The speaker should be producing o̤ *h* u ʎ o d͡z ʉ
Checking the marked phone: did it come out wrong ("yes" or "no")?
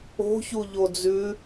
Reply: yes